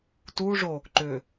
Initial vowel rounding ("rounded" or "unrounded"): rounded